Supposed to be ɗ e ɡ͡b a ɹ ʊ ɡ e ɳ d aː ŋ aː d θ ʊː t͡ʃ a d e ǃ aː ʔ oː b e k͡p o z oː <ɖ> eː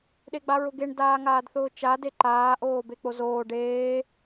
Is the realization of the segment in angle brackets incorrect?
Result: no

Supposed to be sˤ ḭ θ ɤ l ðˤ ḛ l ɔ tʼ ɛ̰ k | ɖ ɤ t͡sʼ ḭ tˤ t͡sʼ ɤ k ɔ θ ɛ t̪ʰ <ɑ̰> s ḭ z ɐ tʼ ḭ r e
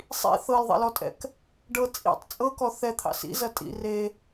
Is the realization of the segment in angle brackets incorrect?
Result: no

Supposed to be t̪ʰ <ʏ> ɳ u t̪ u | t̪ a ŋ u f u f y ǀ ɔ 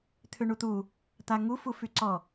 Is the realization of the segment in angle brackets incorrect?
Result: no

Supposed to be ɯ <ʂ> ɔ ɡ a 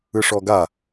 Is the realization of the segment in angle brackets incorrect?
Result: no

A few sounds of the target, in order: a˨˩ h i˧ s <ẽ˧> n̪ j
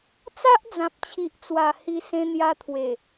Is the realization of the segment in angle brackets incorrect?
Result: no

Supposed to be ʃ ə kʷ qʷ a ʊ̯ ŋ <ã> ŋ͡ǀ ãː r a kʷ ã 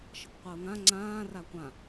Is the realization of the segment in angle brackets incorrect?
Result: no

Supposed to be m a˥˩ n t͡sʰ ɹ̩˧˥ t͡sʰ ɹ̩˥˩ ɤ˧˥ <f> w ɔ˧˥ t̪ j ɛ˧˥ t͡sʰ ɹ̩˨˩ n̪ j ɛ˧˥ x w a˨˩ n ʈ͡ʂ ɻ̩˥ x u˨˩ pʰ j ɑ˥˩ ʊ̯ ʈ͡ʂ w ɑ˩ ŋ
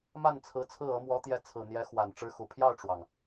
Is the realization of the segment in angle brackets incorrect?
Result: yes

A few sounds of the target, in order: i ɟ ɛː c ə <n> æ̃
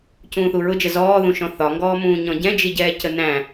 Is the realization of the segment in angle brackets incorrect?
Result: no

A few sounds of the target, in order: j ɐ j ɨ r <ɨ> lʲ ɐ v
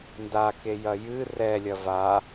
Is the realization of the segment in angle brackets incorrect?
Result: yes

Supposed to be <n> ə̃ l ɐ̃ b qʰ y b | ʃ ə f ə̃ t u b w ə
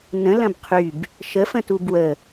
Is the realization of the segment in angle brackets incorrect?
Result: no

